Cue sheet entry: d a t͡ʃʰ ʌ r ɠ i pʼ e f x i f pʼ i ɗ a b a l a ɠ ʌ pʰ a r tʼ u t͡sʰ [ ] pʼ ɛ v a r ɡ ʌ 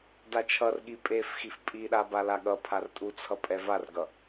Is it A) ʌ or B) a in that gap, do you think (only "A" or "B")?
A